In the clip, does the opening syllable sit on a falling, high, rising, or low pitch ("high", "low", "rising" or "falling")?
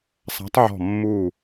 rising